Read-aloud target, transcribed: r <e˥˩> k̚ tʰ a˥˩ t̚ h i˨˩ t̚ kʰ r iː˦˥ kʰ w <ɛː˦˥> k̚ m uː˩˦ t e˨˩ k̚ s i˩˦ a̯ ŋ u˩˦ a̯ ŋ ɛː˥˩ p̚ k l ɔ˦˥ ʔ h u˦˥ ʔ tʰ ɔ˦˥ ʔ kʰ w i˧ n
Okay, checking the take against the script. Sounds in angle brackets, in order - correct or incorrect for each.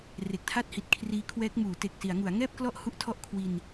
incorrect: e˨˩, correct

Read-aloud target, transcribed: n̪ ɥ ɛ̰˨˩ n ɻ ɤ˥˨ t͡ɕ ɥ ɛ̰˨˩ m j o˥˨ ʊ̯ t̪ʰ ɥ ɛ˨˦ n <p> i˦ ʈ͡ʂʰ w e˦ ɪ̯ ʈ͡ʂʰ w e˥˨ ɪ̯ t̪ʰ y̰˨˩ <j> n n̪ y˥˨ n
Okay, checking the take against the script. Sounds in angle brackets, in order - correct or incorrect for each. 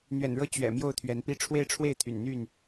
correct, incorrect: none

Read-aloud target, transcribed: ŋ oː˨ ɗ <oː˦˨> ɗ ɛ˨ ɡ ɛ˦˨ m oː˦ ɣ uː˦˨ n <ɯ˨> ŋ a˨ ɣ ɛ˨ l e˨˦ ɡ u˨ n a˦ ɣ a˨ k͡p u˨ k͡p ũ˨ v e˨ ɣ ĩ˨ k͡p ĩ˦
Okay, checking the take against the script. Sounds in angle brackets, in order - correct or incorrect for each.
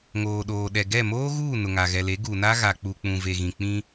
incorrect: oː˨, incorrect: ʊ˨

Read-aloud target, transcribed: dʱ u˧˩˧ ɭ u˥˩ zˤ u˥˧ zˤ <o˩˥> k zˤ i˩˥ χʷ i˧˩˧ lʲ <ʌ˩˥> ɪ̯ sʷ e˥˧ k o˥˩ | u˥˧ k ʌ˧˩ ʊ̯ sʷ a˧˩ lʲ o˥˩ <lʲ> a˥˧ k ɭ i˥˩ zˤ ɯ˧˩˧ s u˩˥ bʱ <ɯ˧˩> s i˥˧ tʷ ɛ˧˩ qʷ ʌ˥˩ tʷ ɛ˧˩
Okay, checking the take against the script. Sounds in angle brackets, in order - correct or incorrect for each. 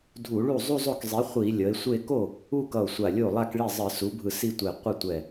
incorrect: o˥˩, correct, incorrect: lˠ, correct

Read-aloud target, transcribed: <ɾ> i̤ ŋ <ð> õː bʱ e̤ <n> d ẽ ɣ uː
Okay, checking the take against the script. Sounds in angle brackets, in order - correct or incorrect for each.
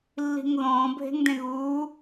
incorrect: lː, correct, incorrect: ŋ

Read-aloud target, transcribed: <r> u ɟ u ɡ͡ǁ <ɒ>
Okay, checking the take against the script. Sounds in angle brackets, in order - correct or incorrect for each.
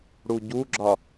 incorrect: ɽ, correct

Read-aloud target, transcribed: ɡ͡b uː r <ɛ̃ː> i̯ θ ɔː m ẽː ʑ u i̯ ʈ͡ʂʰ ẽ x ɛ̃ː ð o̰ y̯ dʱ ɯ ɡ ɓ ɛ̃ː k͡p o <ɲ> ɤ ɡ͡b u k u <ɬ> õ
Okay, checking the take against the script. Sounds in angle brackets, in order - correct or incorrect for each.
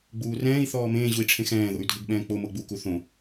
correct, incorrect: m, incorrect: θ

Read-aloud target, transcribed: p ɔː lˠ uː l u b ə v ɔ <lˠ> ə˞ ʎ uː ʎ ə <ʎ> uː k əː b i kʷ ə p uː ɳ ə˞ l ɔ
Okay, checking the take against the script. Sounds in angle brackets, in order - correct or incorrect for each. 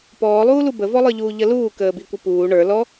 correct, incorrect: l

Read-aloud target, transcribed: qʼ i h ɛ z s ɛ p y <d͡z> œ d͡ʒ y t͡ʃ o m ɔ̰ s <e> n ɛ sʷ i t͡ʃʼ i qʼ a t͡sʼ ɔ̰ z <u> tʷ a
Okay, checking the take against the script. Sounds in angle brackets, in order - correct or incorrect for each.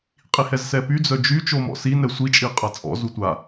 correct, incorrect: i, correct

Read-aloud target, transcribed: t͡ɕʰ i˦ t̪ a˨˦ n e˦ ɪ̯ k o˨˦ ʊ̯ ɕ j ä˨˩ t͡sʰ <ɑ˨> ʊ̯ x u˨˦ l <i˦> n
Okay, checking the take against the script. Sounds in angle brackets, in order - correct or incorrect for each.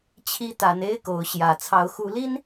incorrect: ɑ˨˦, correct

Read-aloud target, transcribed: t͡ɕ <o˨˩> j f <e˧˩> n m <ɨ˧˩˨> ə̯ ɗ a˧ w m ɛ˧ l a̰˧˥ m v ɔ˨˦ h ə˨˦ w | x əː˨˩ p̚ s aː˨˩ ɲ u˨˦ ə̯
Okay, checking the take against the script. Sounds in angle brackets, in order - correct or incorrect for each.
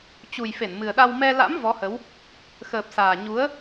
incorrect: u˨˩, correct, incorrect: ɨ˨˩

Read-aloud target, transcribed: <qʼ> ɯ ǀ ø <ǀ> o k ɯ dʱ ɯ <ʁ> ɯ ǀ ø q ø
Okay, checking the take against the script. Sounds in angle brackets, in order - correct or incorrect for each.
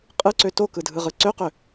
correct, incorrect: t, correct

